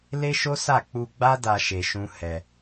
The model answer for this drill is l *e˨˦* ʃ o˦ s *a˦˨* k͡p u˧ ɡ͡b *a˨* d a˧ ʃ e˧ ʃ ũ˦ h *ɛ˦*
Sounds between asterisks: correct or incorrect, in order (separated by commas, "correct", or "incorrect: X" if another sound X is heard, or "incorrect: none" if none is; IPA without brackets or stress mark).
incorrect: e˦, correct, incorrect: a˦, incorrect: ɛ˧